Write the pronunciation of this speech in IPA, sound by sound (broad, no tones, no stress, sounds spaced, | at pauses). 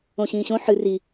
õ ɕ ĩː ɕ õ ħ ɨ r i